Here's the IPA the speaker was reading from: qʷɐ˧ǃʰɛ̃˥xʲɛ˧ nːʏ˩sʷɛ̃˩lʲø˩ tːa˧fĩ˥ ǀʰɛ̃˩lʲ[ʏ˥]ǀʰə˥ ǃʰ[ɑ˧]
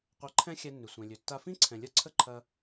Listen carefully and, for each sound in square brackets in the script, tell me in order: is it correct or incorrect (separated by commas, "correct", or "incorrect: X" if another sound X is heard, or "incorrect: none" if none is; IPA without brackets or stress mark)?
incorrect: ə˥, incorrect: ɐ˧